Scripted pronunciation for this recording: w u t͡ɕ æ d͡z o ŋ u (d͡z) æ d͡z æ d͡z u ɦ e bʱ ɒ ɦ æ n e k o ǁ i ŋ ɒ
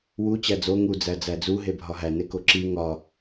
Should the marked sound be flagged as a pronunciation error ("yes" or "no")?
no